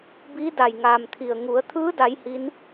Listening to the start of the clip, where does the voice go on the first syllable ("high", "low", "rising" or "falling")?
rising